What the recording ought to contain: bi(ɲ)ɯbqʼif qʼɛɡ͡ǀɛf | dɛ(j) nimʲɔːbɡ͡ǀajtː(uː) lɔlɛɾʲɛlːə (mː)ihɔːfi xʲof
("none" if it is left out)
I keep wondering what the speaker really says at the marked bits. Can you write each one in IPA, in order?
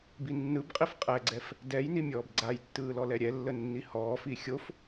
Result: nː, j, ɯː, nː

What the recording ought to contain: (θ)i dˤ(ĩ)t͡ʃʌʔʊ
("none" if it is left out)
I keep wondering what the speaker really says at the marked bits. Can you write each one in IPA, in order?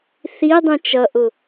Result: θ, ĩ

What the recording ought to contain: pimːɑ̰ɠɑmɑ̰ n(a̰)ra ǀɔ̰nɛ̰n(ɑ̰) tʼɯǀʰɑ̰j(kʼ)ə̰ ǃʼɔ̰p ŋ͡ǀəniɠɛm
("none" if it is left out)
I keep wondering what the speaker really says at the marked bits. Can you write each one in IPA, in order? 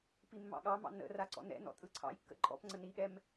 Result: ə̰, ɔ̰, kː

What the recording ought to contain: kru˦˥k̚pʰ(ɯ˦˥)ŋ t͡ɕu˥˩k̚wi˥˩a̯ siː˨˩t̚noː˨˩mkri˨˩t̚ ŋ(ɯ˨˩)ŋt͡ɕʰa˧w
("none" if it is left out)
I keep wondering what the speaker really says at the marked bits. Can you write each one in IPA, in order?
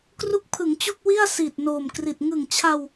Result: ɯ˩˦, ɯ˨˩

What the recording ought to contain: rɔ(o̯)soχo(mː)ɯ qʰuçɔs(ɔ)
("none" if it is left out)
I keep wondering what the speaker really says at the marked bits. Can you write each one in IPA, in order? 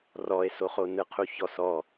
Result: e̯, n, ɔ

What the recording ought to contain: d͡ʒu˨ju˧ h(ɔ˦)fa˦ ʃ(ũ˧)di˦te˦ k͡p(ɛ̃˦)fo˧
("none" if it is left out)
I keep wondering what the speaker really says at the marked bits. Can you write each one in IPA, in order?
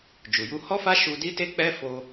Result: ɔ˦, u˧, ɛ˦

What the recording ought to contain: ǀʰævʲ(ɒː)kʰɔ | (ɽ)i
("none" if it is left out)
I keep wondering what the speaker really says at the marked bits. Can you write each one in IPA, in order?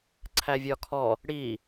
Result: ɒ, ɽ

